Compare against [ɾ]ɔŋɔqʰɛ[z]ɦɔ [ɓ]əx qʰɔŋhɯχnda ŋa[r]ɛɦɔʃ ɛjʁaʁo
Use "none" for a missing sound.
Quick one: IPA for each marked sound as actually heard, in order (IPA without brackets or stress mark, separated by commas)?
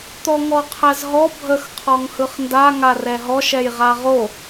t̪, z, bʱ, r